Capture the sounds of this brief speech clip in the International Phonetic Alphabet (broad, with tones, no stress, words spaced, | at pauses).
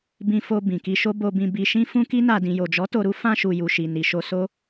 bĩ˧fo˧ bĩ˨ki˧ ʃo˧ bo˧bĩ˧ bi˧ʃĩ˦ fũ˦ki˦na˧ dĩ˨jo˨d͡ʒɔ˨˦ to˧ɾu˦ fã˧ʃu˨ ju˨ʃi˨ ni˨ʃo˧ so˦